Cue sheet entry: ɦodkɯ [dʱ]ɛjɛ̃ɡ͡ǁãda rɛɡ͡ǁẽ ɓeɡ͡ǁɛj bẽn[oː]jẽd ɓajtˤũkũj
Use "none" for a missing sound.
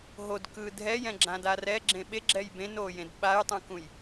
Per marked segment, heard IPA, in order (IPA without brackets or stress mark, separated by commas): dʱ, oː